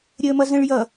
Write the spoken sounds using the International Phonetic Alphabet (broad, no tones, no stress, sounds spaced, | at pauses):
ɾʲ əː m ʌ z ə̃ ɭ j ʌ